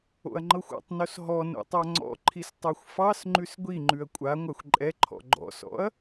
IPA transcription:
o̰ ɐ̯ ŋ͡ǃ ɤ xʷ ɔ̰ tˤ n o s ɦ ɔ n o̰ tˤ a ŋ͡ǀ ɔ̰ ǃʰ i s tˤ o xʷ f ɑ s ŋ͡ǃ ʉ s ɡʷ i ŋ͡ǃ ʉ ɐ̯ kʷʼ a ŋʷ a xʷ ǃʼ ɛ ǃʰ ɔ̰ ɡ͡ǃ ɔ̰ s ɔ̰ ɐ̯

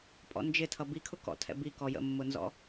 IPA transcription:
pʼ ɔ̰ n d͡ʒ ɪ tʰ ʌ b i kʰ ʊ k ɔ̰ tʰ ɛ̰ b i k ɔ j ə̰ mː ʊ n z ɔ̰

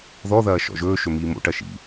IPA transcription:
ð ɔ ð ɐː ʃ ɔ̰ ʒ ɵː ʃ ɵ m iː m o̰ ʈ ɐ ʃ ḭ

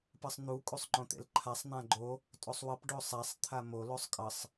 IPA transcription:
p ʌ sˤ n̪ u kʼ u sˤ ŋ͡ǃ õ t̪ ḛ l ǃʰ a sˤ n̪ ã ɡ͡ǃ o | tʼ o sˤ w ʌ p ɖ o sˤ a sˤ t̪ʰ a m o l o sˤ kʼ ʌ sˤ

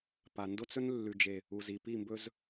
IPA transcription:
p a˨ n d o˦ t͡s ɵ˦ n lː ʉ˨ d͡ʒ e˨ | u˨ z i˨ p i˦˨ m b ɵ˦ z

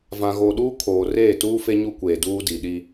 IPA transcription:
v ã˨ ɣ o˨ ɗ uː˦ kʰ oː˨ r eː˦˨ t uː˦ f e˦ ɲ u˦ kʷ eː˨ d uː˦ d i˨ ɗ i˦

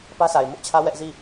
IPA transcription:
p ä˦ s a˨ ɪ̯ m ʊ˦ ʔ t͡ɕʰ ä˦ w ɛ˦ ʔ z i˦˨

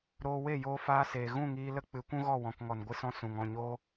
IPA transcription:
ɾ oː˧ w e˦˨ j oː˧ f aː˧ s eː˨ ɣ ũ˦˨ ŋ iː˧ l ə˦ k͡p ɨ˨˦ kʷ ũ˦ ɣ ɔ˦˨ w ɔ̃˨ k ŋ ɔ˨ n ɡʷ ɨ˧ s ɔ̃˧ s ũ˨ ŋ ɔ̃˦˨ ɲ oː˦

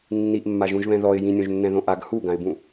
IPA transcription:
nː i ʔ mː a ʒ ũ ʒ β ɛ̃ ð ɔ ɪ̯ j ĩ nʲ õ ʒ nː ɛ̃ ð õ ʔ a ɡ h u ɡ ã ɪ̯ b ũ

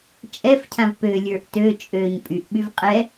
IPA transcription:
t͡ʃʼ ɛ f cʰ ã v p ø lʲ ə˞ ʔ t ø t͡ʃʼ ø ɲ pʼ y ʔ ɓ y v qʼ ɛ

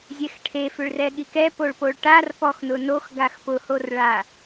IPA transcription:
zʲ ɛ x ʈʰ e f ʏ ɭ r ɛ ɠ i k ɛ p o ɭ p o ɭ ʈ a r p ɔ x n ʊ n o x ɡ a x p ʊ h o r ɭ a

